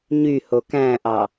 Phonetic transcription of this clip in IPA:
ɲ y h o k æ̃ ʔ ɑ

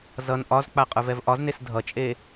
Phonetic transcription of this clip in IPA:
z ʌ n ʔ ɒ z k͡p a qʼ ə˞ v ɛ v ʔ ɒ z n e s dʱ ʌ t͡ʃʼ e

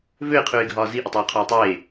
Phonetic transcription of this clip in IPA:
v ø ɪ̯ qʰ ʉː ɪ̯ ɡʱ ɒː z i ʔ i tˤ w ɒ qʰ ɒ ɪ̯ tˤ eː

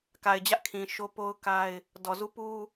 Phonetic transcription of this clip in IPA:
k a˨ ɪ̯ d͡ʑ ä˦ ʔ kʰ ĩ˨ ʃ o˦ p o˦ ʊ̯ k a˦ ɪ̯ | d ɔ˨ z u˦ p u˦

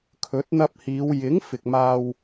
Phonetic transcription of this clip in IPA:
kʰ ɵ˨˥ t̚ n̪ ɐ˧ p̚ h iː˨˧ w j ɪ˨˥ ŋ f ɪ˨ k̚ m aː˧ w

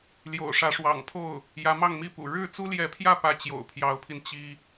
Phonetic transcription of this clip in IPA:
l j o̰˨˩ ʊ̯ ʂ ä˧˥ ʂ w ɑ̰˨˩ ŋ pʰ o˥˩ ʊ̯ | j ä˧˥ m ɑ˥˧ ŋ m i˥˩ p ṵ˨˩ ɻ ɻ̩˥˩ t͡s u˥ l j ɛ˧˥ pʰ j ä˥˧ p ä˥˩ t͡ɕ j o̰˨˩ ʊ̯ pʰ j ɑ˧˥ ʊ̯ pʰ i˧ n t͡ɕ i˥

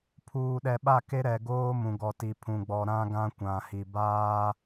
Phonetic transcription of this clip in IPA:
pʰ uː˨ ɗ ɛ˨ ɓ a˦˨ k e˦ ɾ ɛ˨ ɡ oː˦ m ũ˨ ɡ ɔ˨ t i˨ pʰ ũ˨ ɡ͡b ɔ˨ ɾ ã˦ ɡ ã˦ kʷ ã˨ h i˨ b aː˦

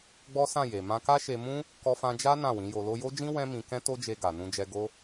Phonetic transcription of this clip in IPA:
ɡ͡b ɔ˦ s ã˦˨ j e˨ m ã˧ k a˦ ʃ e˧ m ũ˦ | k ɔ˧ f ã˧ d͡ʒ a˦ n ã˦˨ w ĩ˨˦ j o˧ l o˧ j o˦ d͡ʒ ĩ˦ w ɛ̃˦ m ĩ˧ k ɛ̃˦ t o˦ d͡ʒ e˧ ɡ a˨ n ũ˧ d͡ʒ ɛ˧ ɡ o˦

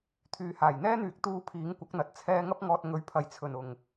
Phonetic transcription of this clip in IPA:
t̪ʰ yː˨ h aː˨˩ j n̪ ɛː˥ n̪ yː˨˥ k̚ t̪ uː˧ pʰ iː˨˥ ŋ kʷ ɐ˨˥ k̚ n̪ ɐ˨ t̚ t͡sʰ ɛː˧ ŋ ɐ˧ p̚ ŋ ɔː˨ t̚ ŋ ɵ˨˧ ɥ pʰ ɐ˨ j t͡sʰ ɵ˨˩ n ʊ˨˩ ŋ

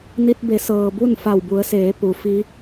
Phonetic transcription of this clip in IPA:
n i˧ t̚ b e˩˧ s ɤː˩ b u˥˨ n f a˧˩ w b u˩˧ ə̯ s eː˩˧ p u˩ f i˧˥

